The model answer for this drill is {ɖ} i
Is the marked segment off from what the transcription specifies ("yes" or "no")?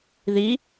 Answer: yes